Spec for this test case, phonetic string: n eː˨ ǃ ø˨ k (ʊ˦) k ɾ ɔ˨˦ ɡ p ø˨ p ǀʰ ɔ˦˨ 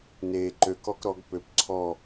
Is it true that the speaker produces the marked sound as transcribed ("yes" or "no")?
no